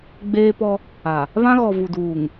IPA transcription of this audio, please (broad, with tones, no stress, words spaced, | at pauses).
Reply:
ɡ͡beː˦pɔ˦ | a˨ | βã˦ ɣɔ˨ vu˨duː˨ŋ